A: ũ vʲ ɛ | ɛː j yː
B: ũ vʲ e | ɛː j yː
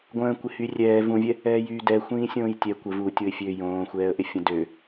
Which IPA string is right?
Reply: A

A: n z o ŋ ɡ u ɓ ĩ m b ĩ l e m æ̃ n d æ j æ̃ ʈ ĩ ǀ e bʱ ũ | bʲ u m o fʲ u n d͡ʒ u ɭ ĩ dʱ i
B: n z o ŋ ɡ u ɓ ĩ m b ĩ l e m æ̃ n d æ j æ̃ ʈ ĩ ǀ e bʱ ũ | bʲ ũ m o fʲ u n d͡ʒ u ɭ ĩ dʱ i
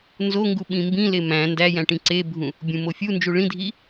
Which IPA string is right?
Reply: B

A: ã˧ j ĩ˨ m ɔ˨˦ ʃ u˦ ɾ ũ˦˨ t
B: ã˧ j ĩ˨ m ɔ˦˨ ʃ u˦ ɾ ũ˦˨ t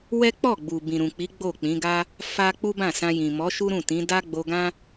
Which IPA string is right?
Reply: A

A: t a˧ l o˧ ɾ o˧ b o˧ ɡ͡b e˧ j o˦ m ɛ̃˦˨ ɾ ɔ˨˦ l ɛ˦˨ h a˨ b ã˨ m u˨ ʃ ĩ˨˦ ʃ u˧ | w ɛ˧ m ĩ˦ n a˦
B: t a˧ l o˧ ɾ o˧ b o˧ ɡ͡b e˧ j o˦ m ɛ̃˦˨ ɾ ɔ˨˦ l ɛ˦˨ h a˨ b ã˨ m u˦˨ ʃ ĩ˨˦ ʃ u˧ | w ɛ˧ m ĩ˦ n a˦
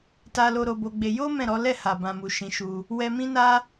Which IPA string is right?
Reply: A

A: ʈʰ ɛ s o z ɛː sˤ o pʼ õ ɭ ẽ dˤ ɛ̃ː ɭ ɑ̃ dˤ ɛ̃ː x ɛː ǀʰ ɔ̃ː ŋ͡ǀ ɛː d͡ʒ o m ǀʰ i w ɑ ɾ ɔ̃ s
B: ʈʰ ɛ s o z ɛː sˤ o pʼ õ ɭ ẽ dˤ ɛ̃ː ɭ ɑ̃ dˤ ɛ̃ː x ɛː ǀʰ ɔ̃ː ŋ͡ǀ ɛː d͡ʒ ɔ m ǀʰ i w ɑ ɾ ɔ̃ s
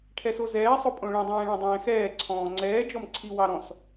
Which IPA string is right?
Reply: B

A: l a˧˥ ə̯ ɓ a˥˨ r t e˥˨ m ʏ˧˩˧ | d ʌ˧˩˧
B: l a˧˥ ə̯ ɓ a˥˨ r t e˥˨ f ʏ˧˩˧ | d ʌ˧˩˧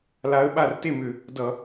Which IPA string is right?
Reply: A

